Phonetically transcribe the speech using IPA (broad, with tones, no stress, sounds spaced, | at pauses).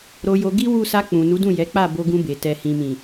ɾ o˧ j o˧ ɡ i˦ w u˦˨ s a˧ k͡p ũ˨ n u˨˦ d ũ˦˨ j ɛ˨˦ k͡p a˦˨ b o˧ ɡ ũ˧ b e˨ t ɛ˨ h ĩ˨ m ĩ˨